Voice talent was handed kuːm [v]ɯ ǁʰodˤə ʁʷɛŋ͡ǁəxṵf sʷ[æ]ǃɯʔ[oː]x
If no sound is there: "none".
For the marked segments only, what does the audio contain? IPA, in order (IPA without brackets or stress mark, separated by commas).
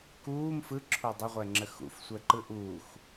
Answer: f, ɛ, uː